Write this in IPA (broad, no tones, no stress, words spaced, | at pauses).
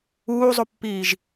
uːzˤupːiːʒ